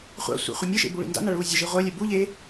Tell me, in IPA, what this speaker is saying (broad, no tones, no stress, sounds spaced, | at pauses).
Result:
χʷ a̰ sʷ ḛ χʷ e mʲ ɨ ʃ ḛ b u ɭ ḭ n d a̰ n a ɭ uː zʲ ə ʒ i ʁʷ œ lʲ ɛ b u ʎ eː